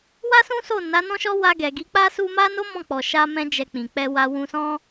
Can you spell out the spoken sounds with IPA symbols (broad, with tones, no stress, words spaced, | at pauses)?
wa˦sũ˦so˦˨ na˨˦nɔ̃˦ʃɔ˦ wa˧ ɡɛ˨ɡi˨˦k͡pa˦ su˧ma˦no˦ mɔ̃˦˨ k͡pɔ˨ʃa˧mɛ̃˧ d͡ʒɛ˨ k͡pĩ˨k͡pɛ˧wa˧ wũ˧sɔ̃˦